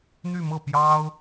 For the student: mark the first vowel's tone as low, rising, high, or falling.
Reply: falling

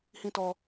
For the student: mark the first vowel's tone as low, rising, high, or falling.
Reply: high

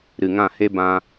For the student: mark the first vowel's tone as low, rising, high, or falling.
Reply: low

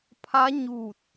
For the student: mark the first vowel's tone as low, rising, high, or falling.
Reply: rising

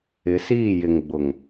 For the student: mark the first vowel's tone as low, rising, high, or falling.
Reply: rising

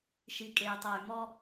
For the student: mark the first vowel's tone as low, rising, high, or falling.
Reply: low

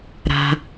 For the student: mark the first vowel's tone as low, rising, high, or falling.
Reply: low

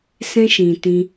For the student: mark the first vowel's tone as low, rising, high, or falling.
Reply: high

